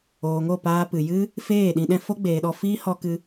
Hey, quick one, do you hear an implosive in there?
yes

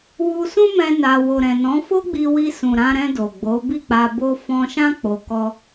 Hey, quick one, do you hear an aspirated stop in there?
no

